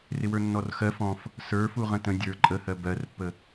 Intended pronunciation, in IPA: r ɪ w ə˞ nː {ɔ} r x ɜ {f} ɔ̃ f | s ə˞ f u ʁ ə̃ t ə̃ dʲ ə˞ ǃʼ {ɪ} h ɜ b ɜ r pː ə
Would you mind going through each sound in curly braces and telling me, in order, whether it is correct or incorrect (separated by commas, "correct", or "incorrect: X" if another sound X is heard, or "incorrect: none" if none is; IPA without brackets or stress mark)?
correct, correct, incorrect: ə